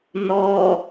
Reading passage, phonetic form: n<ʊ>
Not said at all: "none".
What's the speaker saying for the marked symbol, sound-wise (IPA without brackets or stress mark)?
ɔ